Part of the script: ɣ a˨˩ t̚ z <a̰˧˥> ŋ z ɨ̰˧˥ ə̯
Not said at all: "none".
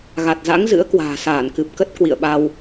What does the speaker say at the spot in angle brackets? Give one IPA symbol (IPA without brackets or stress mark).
a̰˧˥